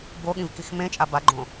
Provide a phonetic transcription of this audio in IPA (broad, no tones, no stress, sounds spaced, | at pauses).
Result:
b o ɠ ĩ v k i x m ẽ t͡ʃʼ a b a ɡ͡ǃ õ